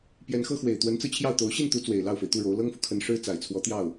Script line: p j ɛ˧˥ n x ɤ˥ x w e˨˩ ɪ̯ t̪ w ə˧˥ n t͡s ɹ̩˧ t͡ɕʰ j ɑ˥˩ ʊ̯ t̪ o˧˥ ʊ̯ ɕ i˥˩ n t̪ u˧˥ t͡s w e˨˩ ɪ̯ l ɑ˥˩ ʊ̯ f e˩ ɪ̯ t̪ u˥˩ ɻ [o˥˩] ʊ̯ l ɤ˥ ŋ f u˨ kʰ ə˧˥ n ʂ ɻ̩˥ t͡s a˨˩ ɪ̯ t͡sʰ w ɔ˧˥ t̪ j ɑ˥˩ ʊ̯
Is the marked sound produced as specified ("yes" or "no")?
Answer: no